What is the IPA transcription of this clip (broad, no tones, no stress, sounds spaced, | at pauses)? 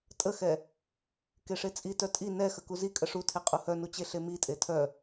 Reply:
tʼ ə x ɛ | k e ʂ e t͡sʼ i t œ tʼ i n ɛ x ə k u z i kʼ ə ʂ u tʰ e qʼ u h œ n u t͡ɕ e ɬ e m i tʼ e tʰ œ